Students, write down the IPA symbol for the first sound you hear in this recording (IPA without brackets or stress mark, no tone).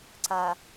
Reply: ǀ